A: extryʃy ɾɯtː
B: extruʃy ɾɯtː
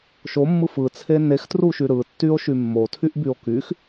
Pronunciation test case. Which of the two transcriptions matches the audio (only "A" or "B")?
B